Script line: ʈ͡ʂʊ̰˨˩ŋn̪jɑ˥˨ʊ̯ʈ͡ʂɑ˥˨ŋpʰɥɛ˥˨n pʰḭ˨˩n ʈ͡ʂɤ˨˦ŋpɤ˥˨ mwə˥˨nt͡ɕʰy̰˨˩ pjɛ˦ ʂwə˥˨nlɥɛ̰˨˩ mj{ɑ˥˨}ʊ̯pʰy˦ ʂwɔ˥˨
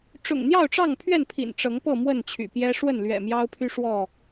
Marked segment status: incorrect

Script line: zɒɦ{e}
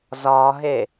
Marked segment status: correct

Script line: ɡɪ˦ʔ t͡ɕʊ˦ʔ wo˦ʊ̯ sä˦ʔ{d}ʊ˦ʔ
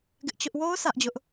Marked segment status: incorrect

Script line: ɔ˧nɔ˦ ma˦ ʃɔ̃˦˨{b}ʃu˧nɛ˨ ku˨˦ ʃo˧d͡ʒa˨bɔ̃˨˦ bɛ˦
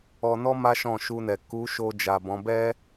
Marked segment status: incorrect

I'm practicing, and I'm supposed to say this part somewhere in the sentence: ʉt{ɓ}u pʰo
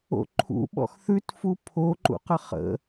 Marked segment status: incorrect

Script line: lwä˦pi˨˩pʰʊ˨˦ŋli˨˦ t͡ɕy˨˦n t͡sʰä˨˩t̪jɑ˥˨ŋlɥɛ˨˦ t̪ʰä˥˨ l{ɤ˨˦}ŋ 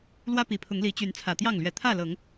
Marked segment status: correct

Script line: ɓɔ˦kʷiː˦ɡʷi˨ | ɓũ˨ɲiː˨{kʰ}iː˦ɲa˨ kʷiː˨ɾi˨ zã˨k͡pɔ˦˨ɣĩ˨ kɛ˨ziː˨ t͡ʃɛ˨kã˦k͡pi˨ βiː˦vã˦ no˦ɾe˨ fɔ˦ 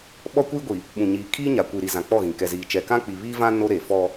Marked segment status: correct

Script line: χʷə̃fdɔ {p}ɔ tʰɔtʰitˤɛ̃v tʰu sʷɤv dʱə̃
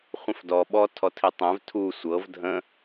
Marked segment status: incorrect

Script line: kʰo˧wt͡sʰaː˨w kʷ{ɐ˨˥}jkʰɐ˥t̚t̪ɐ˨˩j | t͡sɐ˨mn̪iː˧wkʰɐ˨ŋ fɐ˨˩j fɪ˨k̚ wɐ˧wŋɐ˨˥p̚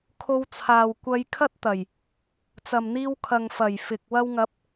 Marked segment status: incorrect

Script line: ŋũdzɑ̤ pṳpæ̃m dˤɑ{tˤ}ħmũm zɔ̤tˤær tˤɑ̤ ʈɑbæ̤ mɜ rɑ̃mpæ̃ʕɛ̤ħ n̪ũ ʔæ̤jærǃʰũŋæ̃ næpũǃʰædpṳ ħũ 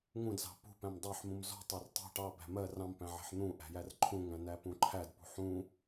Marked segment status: incorrect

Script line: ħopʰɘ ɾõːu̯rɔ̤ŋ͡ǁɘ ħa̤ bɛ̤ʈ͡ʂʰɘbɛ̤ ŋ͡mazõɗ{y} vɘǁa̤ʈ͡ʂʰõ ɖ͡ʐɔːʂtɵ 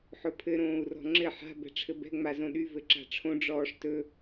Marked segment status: correct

